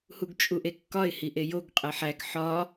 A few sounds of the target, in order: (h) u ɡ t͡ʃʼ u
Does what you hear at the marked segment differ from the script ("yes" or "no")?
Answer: no